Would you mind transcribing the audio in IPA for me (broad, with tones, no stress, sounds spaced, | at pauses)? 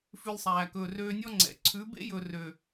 f ʉ˧ lʲ sˤ æː˨ k ɵː˨ r øː˧ nʲ ɔ˦ ŋ͡ǀ ɛ̰˨ ǀʰ ʉ˨˦ b ḛ˦ j ɵ˨ r ø˨